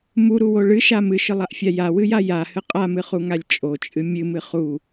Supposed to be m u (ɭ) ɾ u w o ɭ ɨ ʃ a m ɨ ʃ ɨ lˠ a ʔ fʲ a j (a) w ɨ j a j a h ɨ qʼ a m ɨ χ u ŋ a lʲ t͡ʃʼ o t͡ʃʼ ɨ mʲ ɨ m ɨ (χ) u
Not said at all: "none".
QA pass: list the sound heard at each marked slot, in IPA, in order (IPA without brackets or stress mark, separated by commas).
none, a, χ